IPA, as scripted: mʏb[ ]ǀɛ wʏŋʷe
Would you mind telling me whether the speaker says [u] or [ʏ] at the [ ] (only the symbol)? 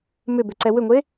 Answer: ʏ